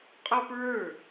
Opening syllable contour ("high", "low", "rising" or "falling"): high